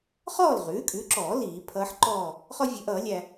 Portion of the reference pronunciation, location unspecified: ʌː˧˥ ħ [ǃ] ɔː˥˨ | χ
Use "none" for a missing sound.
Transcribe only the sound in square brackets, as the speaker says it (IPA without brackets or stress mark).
ǃ